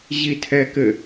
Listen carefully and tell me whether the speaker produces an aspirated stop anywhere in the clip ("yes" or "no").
yes